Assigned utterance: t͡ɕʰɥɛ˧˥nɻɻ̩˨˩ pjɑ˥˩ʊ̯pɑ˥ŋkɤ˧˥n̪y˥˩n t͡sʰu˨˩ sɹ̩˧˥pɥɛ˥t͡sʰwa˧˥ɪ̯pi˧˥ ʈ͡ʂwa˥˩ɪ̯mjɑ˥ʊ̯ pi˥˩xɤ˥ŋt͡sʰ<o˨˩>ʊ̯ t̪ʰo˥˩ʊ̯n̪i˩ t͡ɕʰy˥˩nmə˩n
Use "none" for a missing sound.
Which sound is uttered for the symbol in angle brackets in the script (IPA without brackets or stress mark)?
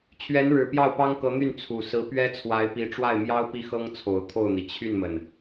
o˨˩